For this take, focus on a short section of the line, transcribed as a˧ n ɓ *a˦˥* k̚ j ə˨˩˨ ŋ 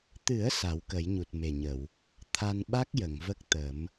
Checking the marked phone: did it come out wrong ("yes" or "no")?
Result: no